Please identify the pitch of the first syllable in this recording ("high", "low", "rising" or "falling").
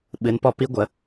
rising